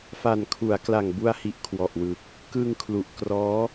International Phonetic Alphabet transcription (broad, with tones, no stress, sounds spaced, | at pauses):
f a˨˩ n kʰ u˩˦ a̯ k l a˨˩ ŋ b u˧ a̯ h i˨˩ ʔ kʰ w ɔ˨˩ ʔ w ɯ˨˩ k̚ | k ɯ˧ ŋ kʰ l u˨˩ ʔ k r ɔː˦˥